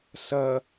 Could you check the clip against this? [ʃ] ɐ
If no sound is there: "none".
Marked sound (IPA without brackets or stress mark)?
s